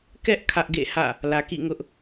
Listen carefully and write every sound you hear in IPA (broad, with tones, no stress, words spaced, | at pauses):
kɛ˦ʔ kʰä˦ʔɡḛ˦˨hä̰˦˨ | lä˨kḭ˦˨ŋʊ˦ʔ